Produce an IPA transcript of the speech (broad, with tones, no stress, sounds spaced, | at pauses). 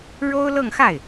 ɻ o˥ ʊ̯ l ɤ˥˧ ŋ x a˥˩ ɪ̯